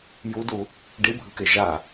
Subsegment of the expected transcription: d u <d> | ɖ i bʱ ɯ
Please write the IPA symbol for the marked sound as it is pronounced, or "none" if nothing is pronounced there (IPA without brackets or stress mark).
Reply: none